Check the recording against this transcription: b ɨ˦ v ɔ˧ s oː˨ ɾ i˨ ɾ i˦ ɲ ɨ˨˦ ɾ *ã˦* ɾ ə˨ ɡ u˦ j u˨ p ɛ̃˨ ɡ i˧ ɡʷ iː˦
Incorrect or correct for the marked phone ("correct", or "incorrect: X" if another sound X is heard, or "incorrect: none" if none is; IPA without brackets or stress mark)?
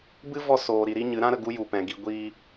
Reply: correct